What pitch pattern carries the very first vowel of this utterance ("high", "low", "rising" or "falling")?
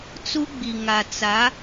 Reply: high